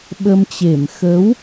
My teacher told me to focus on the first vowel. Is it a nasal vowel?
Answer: no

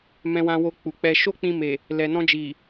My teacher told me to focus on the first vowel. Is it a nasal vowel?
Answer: yes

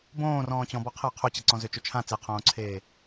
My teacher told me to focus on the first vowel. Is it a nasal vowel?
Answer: yes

